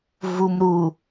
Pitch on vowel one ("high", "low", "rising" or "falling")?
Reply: low